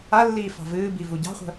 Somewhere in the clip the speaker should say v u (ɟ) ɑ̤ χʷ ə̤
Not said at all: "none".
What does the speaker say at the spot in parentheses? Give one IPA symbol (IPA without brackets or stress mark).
ɟ